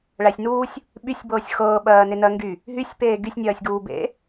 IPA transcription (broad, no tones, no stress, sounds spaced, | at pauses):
ɭ æ sʲ n uː sʲ | ɓ y sʲ b ɤː sʲ x ɤː ɓ ɜː n e n ɜ ŋ ɡ y | ɦ y sʲ p eː ɡ y sʲ nʲ ɜː sʲ ɡ uː b ḛ